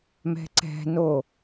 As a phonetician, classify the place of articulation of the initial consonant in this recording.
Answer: labial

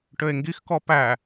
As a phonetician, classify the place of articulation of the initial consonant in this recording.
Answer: retroflex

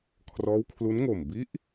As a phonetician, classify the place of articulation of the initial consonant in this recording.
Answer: velar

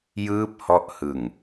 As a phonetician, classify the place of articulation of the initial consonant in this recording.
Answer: palatal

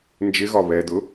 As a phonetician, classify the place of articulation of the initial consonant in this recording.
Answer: alveolar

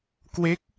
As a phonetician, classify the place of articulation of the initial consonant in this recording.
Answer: velar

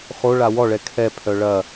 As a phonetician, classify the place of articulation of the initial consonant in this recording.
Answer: uvular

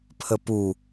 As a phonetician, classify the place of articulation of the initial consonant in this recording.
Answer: labial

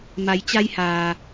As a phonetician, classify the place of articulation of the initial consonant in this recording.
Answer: labial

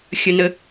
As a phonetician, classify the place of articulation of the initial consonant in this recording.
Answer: velar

